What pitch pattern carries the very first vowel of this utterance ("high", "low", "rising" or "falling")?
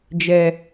high